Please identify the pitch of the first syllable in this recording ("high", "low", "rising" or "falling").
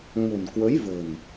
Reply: low